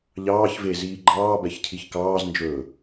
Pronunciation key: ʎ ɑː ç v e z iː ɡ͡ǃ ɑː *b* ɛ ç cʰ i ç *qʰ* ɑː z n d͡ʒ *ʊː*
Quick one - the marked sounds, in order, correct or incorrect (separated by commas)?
correct, incorrect, incorrect